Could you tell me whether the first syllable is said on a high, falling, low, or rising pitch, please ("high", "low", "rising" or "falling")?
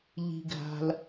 low